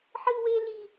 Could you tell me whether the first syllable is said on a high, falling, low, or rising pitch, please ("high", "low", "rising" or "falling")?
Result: high